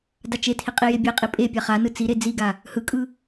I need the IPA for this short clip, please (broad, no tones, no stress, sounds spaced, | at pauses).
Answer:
d a t͡ʃ e tʰ i qʼ i j e bʲ e qʼ i pʼ e pʲ a χ a n ɯ t͡s i ɾ e d͡z i ɡ a | h ɯ kʼ ɯ